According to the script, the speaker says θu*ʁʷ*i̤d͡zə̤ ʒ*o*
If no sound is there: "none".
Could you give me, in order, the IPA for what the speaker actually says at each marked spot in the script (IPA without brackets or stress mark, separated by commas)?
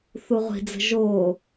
ʁʷ, o